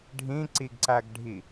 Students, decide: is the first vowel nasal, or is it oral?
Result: nasal